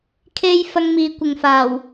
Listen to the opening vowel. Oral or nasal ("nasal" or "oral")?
oral